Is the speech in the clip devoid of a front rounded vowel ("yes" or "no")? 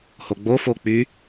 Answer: no